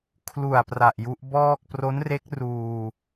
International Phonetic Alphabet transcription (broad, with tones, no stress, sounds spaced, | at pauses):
kʰ l u˨˩ a̯ p r a˨˩ ʔ j u˦˥ ʔ b ɔː˥˩ k̚ p r o˦˥ n r e˦˥ k̚ r uː˧